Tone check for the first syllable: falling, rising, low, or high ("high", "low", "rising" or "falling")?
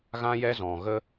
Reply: high